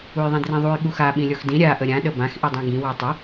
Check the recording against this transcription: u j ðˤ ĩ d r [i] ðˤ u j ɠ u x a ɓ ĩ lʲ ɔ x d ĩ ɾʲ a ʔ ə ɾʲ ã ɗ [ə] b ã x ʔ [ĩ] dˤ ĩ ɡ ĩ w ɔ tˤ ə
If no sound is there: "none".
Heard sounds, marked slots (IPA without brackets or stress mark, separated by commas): ĩ, ə, i